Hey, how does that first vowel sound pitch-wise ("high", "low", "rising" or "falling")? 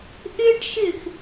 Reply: high